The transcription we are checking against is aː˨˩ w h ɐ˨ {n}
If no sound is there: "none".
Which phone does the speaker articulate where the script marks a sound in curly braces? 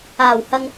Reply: ŋ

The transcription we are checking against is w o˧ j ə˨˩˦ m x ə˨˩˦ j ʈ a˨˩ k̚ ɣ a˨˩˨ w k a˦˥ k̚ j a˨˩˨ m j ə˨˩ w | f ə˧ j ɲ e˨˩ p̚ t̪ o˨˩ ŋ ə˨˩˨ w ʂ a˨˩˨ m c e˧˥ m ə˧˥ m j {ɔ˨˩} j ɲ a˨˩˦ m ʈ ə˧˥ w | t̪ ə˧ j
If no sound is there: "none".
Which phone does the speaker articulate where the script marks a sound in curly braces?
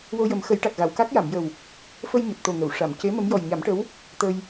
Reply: ɔ˨˩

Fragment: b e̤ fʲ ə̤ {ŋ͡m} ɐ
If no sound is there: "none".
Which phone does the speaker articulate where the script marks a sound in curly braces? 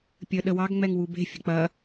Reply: k͡p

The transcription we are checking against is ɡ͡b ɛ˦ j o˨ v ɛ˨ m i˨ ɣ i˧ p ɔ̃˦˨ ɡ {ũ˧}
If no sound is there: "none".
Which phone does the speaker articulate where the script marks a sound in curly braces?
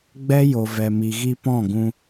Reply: ũ˧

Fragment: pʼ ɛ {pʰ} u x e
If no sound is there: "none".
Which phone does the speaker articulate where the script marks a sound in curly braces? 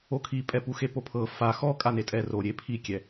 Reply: p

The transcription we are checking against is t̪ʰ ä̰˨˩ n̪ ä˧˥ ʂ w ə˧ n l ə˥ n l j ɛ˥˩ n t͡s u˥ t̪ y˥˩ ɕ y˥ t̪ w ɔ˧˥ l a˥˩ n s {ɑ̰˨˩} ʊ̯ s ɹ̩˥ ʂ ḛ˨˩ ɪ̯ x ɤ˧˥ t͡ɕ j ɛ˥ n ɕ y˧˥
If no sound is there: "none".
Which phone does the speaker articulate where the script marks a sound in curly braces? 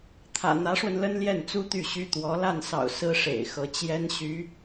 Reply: ɑ̰˨˩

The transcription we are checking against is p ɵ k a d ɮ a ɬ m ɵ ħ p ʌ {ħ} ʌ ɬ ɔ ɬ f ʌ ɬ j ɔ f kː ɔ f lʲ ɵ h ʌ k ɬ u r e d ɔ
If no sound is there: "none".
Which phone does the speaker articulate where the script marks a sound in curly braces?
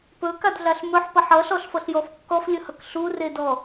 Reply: ħ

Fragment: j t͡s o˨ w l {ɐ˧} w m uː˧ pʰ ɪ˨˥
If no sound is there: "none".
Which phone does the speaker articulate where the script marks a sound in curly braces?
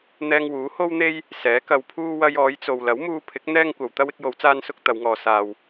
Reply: ɐ˨˥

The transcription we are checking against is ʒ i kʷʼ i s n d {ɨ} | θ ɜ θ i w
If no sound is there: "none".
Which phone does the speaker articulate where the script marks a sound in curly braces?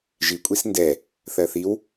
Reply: ɛ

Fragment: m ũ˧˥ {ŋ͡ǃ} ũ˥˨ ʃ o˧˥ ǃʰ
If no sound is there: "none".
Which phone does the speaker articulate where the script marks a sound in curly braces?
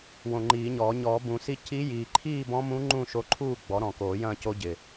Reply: ŋ͡ǃ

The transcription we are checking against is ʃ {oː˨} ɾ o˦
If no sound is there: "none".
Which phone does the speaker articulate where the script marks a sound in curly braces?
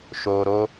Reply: oː˨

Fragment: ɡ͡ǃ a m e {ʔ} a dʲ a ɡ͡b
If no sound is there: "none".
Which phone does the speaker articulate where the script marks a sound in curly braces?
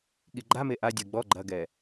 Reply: ʔ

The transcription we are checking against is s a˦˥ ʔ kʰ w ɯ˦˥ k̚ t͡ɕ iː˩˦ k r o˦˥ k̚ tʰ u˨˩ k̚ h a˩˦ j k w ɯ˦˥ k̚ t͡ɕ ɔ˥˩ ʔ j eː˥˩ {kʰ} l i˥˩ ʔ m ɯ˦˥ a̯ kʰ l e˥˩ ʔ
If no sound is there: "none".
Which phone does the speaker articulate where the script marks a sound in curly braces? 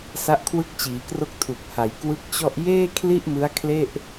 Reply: kʰ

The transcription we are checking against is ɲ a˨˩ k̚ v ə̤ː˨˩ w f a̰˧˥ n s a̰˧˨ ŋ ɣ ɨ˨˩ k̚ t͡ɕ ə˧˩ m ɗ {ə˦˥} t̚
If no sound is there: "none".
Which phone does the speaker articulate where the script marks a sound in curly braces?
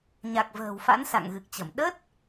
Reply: ə˦˥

